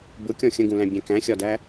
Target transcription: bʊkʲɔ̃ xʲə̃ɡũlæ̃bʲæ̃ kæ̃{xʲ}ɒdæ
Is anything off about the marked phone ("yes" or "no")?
no